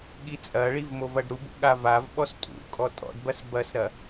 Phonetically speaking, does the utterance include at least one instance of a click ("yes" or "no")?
no